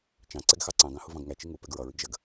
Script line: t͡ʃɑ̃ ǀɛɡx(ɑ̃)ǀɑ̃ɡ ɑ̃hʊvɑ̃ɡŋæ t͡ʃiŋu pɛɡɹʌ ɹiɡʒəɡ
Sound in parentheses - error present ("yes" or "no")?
yes